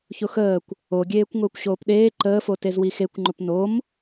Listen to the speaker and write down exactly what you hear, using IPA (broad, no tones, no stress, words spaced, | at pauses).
çʊxəːkʷ | oɡʲeːkʷ ŋʊːkʷɕoːpɗeː ǃəːfotez wixekʷŋ͡ǃʊp nom